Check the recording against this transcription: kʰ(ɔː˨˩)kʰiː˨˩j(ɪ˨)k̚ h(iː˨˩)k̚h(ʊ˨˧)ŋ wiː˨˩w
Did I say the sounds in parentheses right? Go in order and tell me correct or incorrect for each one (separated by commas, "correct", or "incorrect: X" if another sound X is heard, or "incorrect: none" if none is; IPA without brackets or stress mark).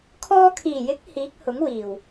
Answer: incorrect: ɔː˧, incorrect: ɪ˨˥, incorrect: iː˨˥, incorrect: ʊ˨˥